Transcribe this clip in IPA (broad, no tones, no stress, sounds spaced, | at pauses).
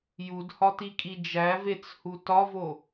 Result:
j u d h ɒ t i kʼ i d͡ʒ æ v e t͡s h u t ɒ v o